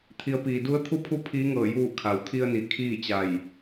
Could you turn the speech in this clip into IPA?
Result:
t̪ʰ i˩˧ ə̯ p iː˩ d u˧˥ ə̯ t̪ʰ u˧˥ pʰ u˧ pʰ iː˧˥ ŋ ɤː˧˩ j uː˧˩ kʰ a˩ w t̪ʰ i˧ ə̯ n i˩˧ kʰ iː˥˨ t͡ɕ a˧˩ j

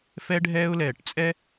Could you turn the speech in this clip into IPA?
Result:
f ɛ˧ ɖʱ ɛː˧ ʊ̯ l ɛː˨ ʈ t͡sʼ ɛ˦

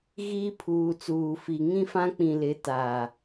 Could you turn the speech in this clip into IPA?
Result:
ɣ iː˦ pʰ uː˨ t͡s uː˨ f i˨ ŋ ĩ˦ f ã˦ k͡p ĩ˨ l ɪ˨˦ t aː˨

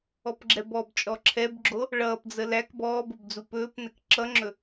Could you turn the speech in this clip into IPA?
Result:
ɔ p ɡ͡ǁ ɛ b ɔ b t͡ʃʼ ɔ ǁʰ ɛ b ɡ͡ǁ o | ɭ ʌː p d͡z ə l æ k b ɔː b o b d͡z u p ɵː p n ɛ k ǁ ʌ ŋ͡ǁ ɵ

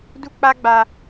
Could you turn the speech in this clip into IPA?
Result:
d u˦ k͡p a˦ ɡ͡b a˦

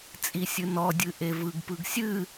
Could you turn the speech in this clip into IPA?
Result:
t͡sʼ i sʲ ɨ n ɔ dʲ ɨ ʔ e v ɯ ɡ p ɯ ɡ sʲ ɨ

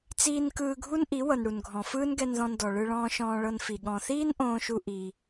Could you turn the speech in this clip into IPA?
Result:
t͡s iː˧ n k ɯː˧ ɡʱ u˦ n ʔ i˨˦ w ɤ˨ n ɽ u˨ n ɡʱ ɔ̃˨ f ɯː˦ n ɡ ɛ˧ n ð ɔ̃˧ n d ɔ˨ ɭ ɯ˧ ɭ ɔ̃ː˧ ʃ ɔ̃ː˧ ɭ ɤ˧ n f i˨ ɠ ɔ̃˨ θ iː˦ n ʔ õː˦ ʃ u˦ ʔ iː˧

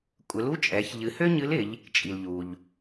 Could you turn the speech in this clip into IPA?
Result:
kʷʼ ɘ˩˧ l u˧˥ t͡ʃʼ ɛ˩˧ ç ʎ ɨ˩˧ h ø˥ ɲ ɨ˧˥ l ɪ˩˧ ʎ | t͡ʃʼ i˩ l ʎ u˩ ʎ

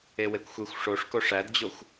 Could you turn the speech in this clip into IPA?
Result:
e w e kʷ xʷ e xʷ ʂ o ʂ k o ʂ æ d d͡ʑ o xʷ

